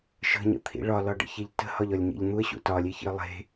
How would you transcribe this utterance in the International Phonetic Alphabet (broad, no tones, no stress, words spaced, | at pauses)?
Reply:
ʃə̤ɲə̰t̪ʰḭ ɭɒlɒɖə̰çeʎ tə̤hɒʎɒlʲɲḭʎ n̪uə̯ɕṵ tɒlʲeçḭə̯ lˠe̤